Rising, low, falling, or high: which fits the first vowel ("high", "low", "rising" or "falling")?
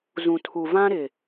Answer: low